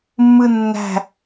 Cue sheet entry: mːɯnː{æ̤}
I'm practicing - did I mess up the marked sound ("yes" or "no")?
no